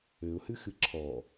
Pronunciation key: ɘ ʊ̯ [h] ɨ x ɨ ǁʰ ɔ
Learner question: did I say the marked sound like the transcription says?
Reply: yes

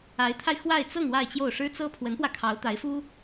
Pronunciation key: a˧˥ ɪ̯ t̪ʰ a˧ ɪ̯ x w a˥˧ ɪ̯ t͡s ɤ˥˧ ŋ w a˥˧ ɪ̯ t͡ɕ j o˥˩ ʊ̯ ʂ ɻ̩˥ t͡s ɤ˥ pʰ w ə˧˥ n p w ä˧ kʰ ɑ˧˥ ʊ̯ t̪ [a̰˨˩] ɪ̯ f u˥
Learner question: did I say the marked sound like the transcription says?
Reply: no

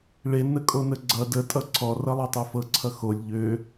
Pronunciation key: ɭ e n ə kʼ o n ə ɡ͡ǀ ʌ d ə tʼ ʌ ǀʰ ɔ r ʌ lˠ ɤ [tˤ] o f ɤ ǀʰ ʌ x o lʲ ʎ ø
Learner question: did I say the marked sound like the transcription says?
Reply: yes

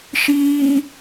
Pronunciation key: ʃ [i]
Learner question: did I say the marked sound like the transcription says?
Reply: no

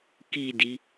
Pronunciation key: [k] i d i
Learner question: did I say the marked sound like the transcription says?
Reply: yes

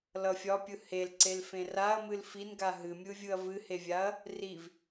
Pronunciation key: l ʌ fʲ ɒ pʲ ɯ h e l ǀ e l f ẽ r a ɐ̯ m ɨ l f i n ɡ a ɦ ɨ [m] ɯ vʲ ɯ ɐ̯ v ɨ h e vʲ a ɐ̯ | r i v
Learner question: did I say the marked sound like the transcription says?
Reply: no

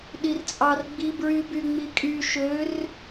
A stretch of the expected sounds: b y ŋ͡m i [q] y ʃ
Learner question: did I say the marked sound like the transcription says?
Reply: no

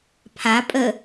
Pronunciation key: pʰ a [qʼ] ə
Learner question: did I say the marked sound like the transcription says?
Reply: no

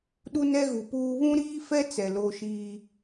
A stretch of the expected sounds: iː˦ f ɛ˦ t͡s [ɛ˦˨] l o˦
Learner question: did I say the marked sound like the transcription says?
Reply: no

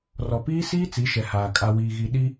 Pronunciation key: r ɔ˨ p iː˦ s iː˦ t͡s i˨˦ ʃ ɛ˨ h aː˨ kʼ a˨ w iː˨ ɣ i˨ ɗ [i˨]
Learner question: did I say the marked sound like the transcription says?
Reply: no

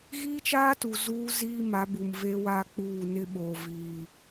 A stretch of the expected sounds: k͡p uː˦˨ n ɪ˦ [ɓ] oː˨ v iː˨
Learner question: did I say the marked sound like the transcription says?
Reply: yes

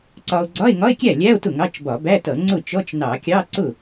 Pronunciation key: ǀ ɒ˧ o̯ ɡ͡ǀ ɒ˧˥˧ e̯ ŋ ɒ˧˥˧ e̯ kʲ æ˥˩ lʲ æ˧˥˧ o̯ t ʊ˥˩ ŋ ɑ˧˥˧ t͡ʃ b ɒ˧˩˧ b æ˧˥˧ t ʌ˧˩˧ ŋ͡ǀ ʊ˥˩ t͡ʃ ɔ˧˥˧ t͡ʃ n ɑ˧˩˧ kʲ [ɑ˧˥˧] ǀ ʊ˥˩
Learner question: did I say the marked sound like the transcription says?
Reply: yes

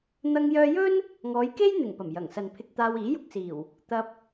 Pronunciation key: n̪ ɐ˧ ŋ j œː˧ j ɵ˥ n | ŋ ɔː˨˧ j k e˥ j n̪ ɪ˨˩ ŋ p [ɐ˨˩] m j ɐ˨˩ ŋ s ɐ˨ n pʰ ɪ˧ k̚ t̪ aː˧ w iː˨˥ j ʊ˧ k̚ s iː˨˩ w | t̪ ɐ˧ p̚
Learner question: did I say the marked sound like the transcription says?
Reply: yes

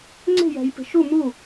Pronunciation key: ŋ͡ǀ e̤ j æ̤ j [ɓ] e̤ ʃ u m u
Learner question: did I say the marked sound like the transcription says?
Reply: no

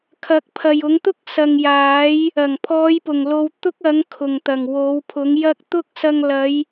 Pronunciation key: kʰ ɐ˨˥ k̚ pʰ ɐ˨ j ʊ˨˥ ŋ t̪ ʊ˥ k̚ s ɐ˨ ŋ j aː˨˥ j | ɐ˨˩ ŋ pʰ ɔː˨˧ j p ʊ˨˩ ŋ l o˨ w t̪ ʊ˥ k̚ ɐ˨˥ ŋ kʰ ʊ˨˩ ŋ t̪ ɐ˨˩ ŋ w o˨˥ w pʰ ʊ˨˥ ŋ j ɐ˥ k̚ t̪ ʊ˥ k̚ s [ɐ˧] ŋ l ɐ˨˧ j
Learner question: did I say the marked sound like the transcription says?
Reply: yes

